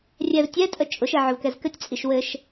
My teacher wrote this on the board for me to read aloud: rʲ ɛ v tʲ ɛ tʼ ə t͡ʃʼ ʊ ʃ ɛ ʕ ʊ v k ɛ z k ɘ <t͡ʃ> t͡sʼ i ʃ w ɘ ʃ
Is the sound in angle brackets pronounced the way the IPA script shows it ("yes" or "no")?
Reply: no